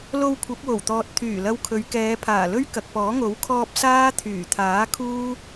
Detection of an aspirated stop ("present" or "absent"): present